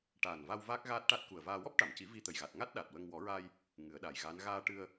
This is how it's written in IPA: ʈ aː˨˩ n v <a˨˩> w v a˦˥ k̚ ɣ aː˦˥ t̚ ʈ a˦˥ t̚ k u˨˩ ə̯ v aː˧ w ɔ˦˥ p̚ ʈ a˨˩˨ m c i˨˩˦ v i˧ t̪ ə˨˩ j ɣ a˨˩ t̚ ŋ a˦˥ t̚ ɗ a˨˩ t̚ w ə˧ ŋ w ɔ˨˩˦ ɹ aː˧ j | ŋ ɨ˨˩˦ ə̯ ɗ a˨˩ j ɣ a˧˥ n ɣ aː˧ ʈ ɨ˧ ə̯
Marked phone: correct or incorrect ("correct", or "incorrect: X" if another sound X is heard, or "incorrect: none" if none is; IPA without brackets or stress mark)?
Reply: incorrect: a˧